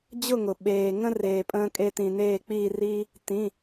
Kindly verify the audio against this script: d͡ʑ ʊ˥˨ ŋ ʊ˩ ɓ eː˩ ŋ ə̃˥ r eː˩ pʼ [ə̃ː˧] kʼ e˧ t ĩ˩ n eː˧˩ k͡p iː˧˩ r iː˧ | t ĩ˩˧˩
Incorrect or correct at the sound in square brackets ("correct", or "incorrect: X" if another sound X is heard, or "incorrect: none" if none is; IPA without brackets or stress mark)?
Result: correct